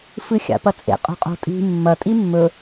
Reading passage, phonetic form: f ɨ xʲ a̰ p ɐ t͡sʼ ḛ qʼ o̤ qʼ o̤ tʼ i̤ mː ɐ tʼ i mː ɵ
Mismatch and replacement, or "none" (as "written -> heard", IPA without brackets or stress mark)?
none